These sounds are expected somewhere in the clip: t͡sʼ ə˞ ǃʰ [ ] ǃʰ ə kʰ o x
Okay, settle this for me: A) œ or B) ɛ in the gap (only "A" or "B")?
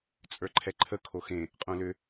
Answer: B